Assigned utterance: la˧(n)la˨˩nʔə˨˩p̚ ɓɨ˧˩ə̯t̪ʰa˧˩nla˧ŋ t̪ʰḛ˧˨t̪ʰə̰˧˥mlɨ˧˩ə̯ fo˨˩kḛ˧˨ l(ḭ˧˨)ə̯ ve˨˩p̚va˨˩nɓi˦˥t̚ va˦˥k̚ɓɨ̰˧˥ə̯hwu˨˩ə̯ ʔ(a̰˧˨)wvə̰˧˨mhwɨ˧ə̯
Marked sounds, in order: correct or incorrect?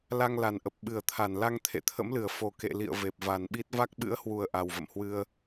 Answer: incorrect: ŋ, correct, incorrect: a˨˩

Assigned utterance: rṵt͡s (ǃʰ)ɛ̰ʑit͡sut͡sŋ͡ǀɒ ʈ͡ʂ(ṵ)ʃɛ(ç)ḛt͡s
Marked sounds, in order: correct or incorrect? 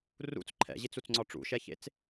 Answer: correct, correct, correct

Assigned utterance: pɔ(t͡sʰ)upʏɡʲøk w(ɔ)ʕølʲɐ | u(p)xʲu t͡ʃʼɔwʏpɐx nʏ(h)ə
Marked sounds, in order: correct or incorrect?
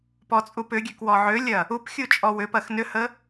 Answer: incorrect: t͡sʼ, correct, correct, correct

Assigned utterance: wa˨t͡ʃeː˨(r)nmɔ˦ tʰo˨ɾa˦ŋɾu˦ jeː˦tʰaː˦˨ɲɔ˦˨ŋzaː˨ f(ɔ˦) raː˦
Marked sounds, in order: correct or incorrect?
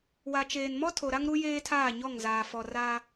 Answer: incorrect: none, incorrect: ɔ˨

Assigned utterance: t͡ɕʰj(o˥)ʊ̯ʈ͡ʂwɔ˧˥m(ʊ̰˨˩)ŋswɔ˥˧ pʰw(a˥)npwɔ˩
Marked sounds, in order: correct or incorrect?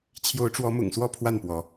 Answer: incorrect: o˧˥, correct, incorrect: a˥˩

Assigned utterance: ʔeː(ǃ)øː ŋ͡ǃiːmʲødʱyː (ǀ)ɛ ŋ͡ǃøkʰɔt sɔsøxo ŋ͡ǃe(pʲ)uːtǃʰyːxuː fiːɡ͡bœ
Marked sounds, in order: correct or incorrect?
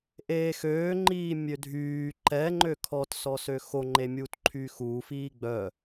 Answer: incorrect: x, incorrect: ǃ, incorrect: mʲ

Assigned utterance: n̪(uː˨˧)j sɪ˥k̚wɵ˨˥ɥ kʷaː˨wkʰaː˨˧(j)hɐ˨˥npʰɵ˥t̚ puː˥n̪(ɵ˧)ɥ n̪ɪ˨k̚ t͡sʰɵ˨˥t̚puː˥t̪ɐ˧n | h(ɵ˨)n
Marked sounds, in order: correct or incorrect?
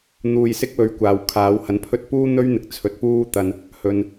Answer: incorrect: uː˧, incorrect: w, incorrect: ɵ˥, correct

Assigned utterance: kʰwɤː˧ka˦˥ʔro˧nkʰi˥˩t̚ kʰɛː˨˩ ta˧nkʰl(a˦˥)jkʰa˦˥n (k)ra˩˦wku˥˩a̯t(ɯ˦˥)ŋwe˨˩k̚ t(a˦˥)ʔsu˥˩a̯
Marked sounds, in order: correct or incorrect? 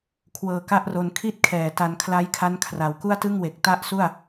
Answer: correct, incorrect: kʰ, incorrect: ɯ˥˩, correct

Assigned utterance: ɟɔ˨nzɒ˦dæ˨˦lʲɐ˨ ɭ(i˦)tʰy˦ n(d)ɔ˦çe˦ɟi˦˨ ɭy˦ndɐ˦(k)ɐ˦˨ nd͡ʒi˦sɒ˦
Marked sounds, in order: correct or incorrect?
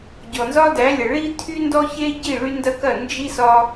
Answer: correct, correct, correct

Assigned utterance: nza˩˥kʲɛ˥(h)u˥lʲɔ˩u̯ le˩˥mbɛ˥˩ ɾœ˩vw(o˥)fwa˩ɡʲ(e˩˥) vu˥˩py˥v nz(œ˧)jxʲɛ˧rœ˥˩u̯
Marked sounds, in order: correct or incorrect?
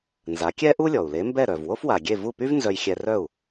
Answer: incorrect: ʔ, correct, incorrect: e˥˩, correct

